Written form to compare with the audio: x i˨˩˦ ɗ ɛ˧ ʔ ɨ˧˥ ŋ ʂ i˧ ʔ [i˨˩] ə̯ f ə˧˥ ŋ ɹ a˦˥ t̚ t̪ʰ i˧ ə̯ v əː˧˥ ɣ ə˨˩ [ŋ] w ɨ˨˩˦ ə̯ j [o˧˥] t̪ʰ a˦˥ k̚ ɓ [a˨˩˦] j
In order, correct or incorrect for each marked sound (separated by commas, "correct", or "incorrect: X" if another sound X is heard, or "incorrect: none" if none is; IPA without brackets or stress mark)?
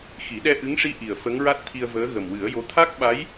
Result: correct, incorrect: m, correct, incorrect: a˧˥